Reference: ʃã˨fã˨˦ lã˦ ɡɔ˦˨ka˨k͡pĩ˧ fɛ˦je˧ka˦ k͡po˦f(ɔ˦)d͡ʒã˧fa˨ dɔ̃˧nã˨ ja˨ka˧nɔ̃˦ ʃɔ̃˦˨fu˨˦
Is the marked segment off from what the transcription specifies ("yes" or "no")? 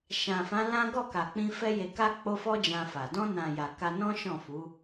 no